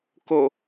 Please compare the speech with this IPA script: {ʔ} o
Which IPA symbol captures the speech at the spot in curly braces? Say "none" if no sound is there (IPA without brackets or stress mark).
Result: k